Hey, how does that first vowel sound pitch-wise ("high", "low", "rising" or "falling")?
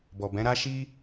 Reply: low